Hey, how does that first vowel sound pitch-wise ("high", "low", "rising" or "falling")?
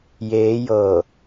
rising